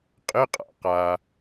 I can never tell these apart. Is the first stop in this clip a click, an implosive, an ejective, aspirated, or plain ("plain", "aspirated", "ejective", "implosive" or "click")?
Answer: ejective